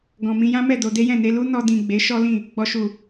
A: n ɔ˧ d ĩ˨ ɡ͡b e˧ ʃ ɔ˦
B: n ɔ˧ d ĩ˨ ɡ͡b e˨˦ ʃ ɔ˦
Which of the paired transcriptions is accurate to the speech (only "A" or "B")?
B